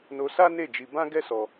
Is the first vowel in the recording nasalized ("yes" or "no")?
no